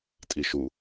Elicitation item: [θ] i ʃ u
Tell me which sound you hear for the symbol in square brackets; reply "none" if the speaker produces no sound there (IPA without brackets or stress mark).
tʼ